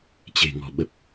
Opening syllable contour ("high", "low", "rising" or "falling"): low